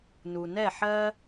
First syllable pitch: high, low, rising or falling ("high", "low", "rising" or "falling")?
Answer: low